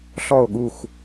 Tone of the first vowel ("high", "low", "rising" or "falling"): falling